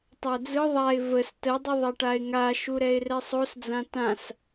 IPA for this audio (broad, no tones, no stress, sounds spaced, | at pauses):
tˤ æ d͡z ɯ ðˤ a ɪ̯ v ə s t ə dˤ ɯ ðˤ ɛ ʈ a ɪ̯ ŋ a ʃ u ɾ ɛ ɪ̯ r ɛ sˤ o s d͡z ã t ã s